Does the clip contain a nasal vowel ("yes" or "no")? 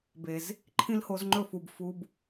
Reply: yes